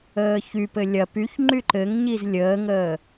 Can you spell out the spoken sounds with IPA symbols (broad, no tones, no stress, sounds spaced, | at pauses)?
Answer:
əː ç y p ɘ lʲ ɐ p y ç ŋ͡ǃ y ǃ ɘ ŋ ɲ i z lʲ əː ŋ əː